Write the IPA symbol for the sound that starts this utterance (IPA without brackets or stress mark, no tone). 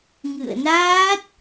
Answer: ŋ